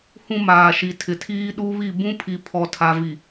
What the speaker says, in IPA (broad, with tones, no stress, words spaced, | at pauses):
hũ˦maː˨ʃi˨ tʰɪ˨tʰiː˦ ɗu˦βi˦˨ bũ˦pʰi˨ pʰɔ˨tʰa˨vi˨